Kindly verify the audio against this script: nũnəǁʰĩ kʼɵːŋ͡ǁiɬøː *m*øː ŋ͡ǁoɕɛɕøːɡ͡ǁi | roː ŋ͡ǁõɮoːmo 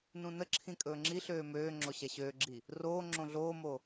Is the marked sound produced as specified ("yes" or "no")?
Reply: yes